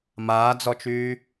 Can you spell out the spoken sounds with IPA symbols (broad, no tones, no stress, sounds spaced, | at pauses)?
m aː d͡z ɔ t͡ʃ yː